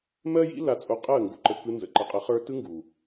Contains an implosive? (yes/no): no